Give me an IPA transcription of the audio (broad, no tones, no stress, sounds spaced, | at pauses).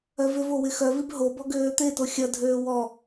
œ v ʏ v o w ɪ x œ v i b ɦ o b ɔ ɡ øː t̪ e t o xʲ ɐ dʱ øː w ɔ